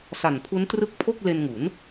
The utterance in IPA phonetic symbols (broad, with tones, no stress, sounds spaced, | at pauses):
s a˨˩ n pʰ u˦˥ n t r ɯ˦˥ k̚ pʰ o˥˩ k̚ l e˧ n ŋ u˩˦ n